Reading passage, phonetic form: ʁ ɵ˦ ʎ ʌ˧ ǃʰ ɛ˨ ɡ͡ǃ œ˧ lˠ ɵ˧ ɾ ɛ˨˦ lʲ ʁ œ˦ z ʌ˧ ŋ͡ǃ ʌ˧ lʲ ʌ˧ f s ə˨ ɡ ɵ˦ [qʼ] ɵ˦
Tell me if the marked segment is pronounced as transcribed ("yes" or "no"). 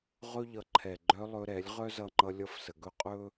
yes